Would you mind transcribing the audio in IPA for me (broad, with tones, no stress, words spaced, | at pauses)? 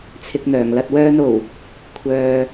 t͡sʰɪ˧k̚n̪œː˨˩ŋlɐ˧t̚ wœː˧no˨˩w | kʷʰœː˨